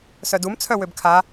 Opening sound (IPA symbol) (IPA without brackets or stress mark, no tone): s